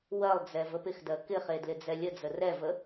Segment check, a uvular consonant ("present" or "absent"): present